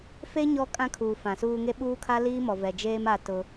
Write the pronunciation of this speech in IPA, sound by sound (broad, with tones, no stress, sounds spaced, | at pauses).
f e˦ ɲ ɔ˦ kʼ ã˦ kʰ uː˨ f ã˨ s uː˦ ŋ e˦ ɓ uː˦ kʰ a˦ l iː˦ m ɔ˨ v ɛ˨ d͡ʒ eː˦ m a˦ t ʊ˦